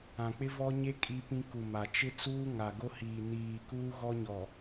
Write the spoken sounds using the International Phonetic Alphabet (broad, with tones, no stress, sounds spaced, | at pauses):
ã˨ k͡p ɪ˦ v ɔ˦ ɲ e˦ kʼ i˦ p ĩ˦ k u˨ m a˨ t͡ʃ ɪ˦ t͡s uː˦ ŋ a˨ ɡ o˦ h iː˨ n iː˨ k uː˦ ɣ ɔ˦ ɲ ɔ˨